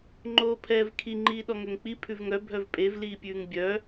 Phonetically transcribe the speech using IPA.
ŋ͡ǃ oː pʰ ɛː v kʰ i ŋ͡ǃ iː ɗ ɔ ŋ ø ŋ k͡p i pʰ ʉ v ŋ œ bʱ œ v pʼ e v l iː pʲ ʉː ŋ bʲ œ

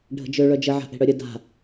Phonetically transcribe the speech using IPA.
ɖʱ ə̤ d͡ʒ ø ɭ œ d͡ʒ ə ʕ a̤ ʔ e̤ ɽ œ ɾʲ ə d a̤

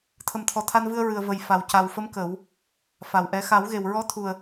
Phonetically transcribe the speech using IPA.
t̪ʰ ə˨˩ m t̪ʰ ɔ˨˩ t̪ʰ a˧ n v ɨ˧ ə̯ ɹ ɨ˨˩ ə̯ v ə˨˩ j f a˨˩ w c a˨˩ w f ə˧˥ m k ə˨˩˦ w | f a˨˩ w ʔ ɛ˧ x a˨˩˦ w ɣ e˨˩ w ɹ ɔ˧˥ t̪ʰ u˨˩ ə̯

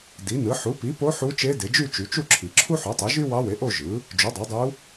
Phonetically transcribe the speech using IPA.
d i˩˥ n ɯ˩˥ ħ u˩˥ p i˩˥ p o˧˥ ħ u˧˥ t͡ʃ e˧˥ d e˩˧ d͡ʒ y˥˧ t͡ʃ y˩˧ t͡ʃ u˥˧ ǁʰ i˩ ǁʰ u˥ ħ o˩˥ tˤ e˩˥ ʒ y˥ w ɑ˧˥ w e˩˥ ʔ o˥˧ ʒ ɯ˩˥ | d͡ʒ u˩˥ dˤ e˩˥ dˤ u˧˥

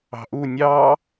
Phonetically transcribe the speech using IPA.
ɑ̤ ʔ u nʲ ɑ

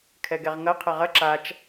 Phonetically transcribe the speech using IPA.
kʰ ɛ ɡ ɛ ʁ ŋ ɐ qʰ ɐ ʁ ɐ ǁ a t͡ʃ

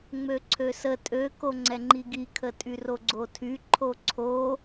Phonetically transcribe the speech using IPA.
ŋ͡m ø ǀʰ ø s ə tʼ ø k o ŋ͡ǀ ɛ ŋ͡ǃ i ɡ i kʰ ə tʼ y r o ɡ͡ǀ o tʰ y ǃʰ o ǀʰ o

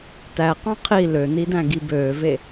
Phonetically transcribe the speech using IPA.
t æ q ɑ̃ qʰ i l ø n i d æ̃ ɡ i b øː v e

